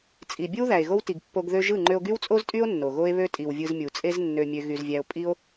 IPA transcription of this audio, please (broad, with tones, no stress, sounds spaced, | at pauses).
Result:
t͡sʼ i˨ bʲ ɯ˦ w ð æ˨ e̯ ɣ o˦ w t i˨ ɡ pː o˧ ɡ ð ø˧ ʒ ɯ˦˨ ŋ͡ǃ ø˧ o̯ ɡ y˦ w t͡sʼ o˦ z tʼ y˦ o̯ nː o˨ ɣ o˦ e̯ β ø˦ tʼ i˨ w vʲ ɯ˧ z mʲ u˨ t͡sʼ e˦ z nː ø˧ mʲ ø˧ ɣ y˧ z vʲ æ˦ o̯ pʼ i˦ o̯